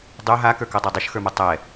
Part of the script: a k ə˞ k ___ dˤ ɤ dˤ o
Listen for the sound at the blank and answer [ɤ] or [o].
o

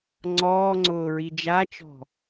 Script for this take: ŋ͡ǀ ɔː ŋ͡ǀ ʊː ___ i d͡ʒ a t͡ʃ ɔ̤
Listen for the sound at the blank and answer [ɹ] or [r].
ɹ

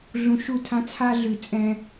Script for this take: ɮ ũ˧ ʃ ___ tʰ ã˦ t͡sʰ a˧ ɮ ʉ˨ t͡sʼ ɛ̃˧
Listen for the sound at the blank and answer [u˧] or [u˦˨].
u˦˨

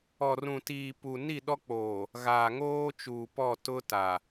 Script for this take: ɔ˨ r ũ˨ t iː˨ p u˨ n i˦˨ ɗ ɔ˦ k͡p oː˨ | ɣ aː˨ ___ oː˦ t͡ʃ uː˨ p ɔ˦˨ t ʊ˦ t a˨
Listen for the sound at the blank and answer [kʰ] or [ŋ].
ŋ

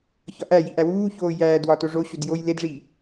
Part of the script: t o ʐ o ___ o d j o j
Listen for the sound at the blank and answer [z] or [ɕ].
ɕ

